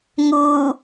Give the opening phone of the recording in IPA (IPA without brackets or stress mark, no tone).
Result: ŋ